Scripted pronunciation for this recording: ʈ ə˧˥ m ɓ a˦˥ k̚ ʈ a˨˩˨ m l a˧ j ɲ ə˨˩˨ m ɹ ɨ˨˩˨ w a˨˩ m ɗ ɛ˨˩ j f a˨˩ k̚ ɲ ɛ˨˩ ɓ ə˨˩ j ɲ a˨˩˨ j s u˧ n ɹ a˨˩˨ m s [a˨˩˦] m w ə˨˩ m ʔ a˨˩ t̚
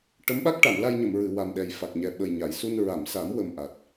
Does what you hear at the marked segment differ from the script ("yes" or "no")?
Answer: no